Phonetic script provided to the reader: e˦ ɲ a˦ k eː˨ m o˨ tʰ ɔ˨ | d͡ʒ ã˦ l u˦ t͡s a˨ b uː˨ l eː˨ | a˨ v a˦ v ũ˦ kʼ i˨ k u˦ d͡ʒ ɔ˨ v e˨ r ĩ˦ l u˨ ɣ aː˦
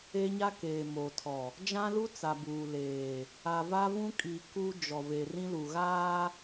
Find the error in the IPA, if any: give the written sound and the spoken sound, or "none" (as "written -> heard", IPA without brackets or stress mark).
none